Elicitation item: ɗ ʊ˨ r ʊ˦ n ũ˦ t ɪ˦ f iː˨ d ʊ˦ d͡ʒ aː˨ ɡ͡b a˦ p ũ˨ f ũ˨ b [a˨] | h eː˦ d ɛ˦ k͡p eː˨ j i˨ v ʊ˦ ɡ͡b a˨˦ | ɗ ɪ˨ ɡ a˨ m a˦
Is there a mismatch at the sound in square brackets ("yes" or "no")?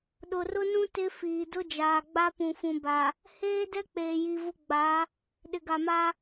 no